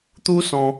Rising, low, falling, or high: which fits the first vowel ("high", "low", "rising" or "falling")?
high